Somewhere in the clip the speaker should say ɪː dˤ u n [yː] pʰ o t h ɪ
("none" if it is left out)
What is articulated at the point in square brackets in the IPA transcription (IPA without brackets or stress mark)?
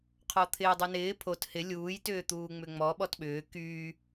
ɪː